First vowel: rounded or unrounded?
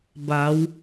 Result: unrounded